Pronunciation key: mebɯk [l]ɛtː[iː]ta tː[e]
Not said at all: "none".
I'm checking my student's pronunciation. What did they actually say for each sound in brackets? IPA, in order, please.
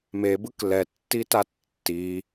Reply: l, i, i

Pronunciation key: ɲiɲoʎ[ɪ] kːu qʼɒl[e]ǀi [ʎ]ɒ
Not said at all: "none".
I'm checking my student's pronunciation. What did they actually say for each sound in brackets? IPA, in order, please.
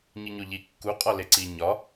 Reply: i, e, ɲ

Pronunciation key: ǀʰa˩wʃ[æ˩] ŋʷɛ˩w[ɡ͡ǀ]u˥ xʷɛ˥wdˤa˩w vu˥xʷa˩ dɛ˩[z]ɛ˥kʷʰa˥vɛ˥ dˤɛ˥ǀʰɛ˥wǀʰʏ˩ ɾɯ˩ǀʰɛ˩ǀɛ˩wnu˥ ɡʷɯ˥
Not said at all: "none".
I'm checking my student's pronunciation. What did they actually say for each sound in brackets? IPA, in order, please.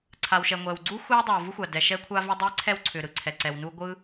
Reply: ɛ˩, ɡ͡ǀ, ʃ

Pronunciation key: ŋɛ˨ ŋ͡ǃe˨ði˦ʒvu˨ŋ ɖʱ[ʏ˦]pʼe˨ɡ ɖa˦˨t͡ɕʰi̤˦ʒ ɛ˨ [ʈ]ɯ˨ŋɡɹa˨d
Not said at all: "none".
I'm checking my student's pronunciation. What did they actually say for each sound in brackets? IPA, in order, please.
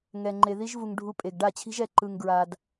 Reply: u˦, ǃ

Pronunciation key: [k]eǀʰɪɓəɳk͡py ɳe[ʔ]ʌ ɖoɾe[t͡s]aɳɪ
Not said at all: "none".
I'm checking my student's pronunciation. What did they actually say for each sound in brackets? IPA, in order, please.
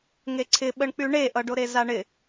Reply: ŋ, ʔ, z

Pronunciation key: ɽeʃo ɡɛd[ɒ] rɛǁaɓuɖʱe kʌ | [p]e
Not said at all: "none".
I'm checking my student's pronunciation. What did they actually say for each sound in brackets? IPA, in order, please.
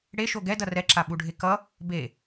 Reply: ʌ, b

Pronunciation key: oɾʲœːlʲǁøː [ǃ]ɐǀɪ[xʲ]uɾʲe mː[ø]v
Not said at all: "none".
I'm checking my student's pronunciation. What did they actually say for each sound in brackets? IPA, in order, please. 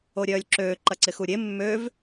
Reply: ǃ, x, ø

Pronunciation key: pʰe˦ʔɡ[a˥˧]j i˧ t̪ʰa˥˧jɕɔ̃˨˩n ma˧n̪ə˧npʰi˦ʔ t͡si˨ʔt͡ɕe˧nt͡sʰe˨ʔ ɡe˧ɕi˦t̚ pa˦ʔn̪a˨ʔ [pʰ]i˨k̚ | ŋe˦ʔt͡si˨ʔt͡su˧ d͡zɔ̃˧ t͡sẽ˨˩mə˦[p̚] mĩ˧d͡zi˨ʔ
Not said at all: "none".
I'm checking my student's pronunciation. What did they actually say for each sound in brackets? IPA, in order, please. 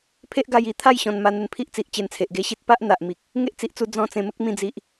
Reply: a˧, m, k̚

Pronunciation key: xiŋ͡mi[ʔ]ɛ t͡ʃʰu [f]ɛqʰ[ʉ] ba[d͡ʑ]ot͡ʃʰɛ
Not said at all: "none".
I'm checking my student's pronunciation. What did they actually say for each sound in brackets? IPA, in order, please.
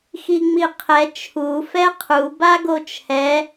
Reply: qʰ, f, u, ɡ

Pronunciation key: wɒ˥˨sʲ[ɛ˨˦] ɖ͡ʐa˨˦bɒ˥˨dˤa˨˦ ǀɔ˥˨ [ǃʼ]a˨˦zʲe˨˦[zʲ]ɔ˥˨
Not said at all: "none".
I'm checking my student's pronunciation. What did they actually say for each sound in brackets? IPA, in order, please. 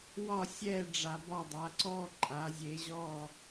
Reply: ɛ˥˨, ǃʼ, ʑ

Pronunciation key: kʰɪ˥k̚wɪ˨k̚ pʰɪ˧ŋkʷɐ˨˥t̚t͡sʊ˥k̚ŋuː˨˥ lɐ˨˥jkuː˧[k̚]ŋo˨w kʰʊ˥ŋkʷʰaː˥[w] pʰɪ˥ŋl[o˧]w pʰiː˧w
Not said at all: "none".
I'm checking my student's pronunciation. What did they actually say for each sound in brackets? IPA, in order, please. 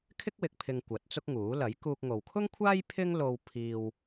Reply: k̚, j, o˧

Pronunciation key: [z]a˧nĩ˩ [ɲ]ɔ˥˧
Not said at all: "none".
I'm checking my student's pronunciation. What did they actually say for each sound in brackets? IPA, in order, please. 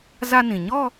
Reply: z, ɲ

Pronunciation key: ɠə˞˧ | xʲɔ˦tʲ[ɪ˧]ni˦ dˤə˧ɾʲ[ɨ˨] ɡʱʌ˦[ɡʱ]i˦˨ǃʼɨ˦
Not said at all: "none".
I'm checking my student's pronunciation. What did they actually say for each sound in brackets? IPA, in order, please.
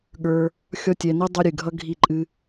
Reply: ɛ˧, ɨ˨, ɡʱ

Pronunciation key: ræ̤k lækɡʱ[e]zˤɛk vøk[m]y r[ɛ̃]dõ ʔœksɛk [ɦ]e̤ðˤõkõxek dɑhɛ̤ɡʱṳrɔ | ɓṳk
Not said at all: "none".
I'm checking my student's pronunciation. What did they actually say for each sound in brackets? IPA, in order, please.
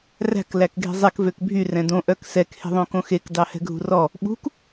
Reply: e̤, bʱ, ɛ̃, h

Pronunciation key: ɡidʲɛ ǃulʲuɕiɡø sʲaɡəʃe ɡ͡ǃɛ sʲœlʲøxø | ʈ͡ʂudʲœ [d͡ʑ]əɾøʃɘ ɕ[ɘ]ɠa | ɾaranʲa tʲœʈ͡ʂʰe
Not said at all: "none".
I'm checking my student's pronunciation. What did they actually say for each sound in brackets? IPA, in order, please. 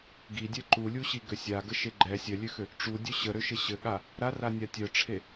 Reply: ɕ, ɘ

